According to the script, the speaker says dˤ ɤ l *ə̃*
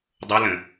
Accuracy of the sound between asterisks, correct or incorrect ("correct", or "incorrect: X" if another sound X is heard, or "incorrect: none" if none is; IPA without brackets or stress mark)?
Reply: correct